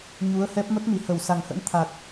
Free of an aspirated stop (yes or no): no